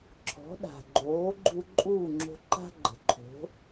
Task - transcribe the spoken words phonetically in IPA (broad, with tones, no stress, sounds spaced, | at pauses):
ǁʰ ɔ̤˩˥ ɗ a̤˩ ɡ͡ǃ oː˩˥ ɡ͡ǃ u˧ ǃʼ uː˥˩ ŋ͡ǁ o̤˧ ǃ a̤˥ ɡ͡ǃ ə̤˩ ǃʰ o̤˩˥